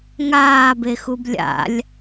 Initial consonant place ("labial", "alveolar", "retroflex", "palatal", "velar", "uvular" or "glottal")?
velar